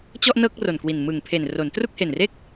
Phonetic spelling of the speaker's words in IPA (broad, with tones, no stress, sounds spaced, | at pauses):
t͡ɕ ɔ˥˩ ʔ n ɤː˥˩ k̚ r o˨˩ n k w i˨˩ n m ɯ˨˩ ŋ pʰ e˨˩ n r o˩˦ n t r u˥˩ k̚ h e˨˩ n r e˥˩ k̚